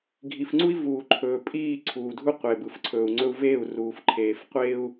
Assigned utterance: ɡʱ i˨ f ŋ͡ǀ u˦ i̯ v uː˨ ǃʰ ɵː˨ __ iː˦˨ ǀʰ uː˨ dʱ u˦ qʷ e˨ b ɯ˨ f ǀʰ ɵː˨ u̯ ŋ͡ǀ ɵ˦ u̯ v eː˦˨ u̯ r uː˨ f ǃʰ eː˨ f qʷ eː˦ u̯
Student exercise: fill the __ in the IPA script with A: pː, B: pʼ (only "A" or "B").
B